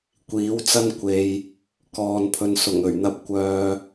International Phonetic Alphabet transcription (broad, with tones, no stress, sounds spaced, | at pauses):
kʷ iː˨˥ w t͡s ɐ˥ n kʷ e˨ j | k ɔː˨ n pʰ ɵ˨ n s ʊ˨˩ ŋ ɵ˨˩ ɥ n̪ ɐ˨ p̚ kʷ œː˨